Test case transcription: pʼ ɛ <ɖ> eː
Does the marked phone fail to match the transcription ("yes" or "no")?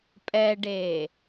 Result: no